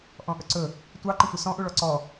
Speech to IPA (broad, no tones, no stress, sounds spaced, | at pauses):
ʔ ɔ̃ ʔ ɵ ǀ ɵ | tʷ ɑ ǃ ə̃ tʷ ɨ s ɔ̃ ʔ u ɭ ɔ ǀ ɔ